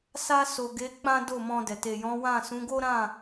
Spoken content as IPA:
s a˧ s o˨ ɡ e˨˦ k͡p ã˦ d o˦˨ m ɔ̃˧ d ɛ˨ t e˨ j ɔ̃˨˦ w ã˦˨ s ũ˨˦ ɡ o˦ ɾ ã˦˨

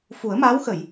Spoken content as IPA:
f u˨˩˦ ə̯ m aː˧˥ w x ə˨˩˨ j

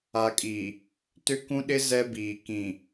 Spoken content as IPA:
a˨ kʼ i˨ | t ʏ˦ k ũ˦ ɗ ɪ˦ z ɛ˦ b iː˨ k ĩ˨

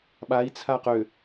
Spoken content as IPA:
ɓ a i̯ t͡sʰ a q ø

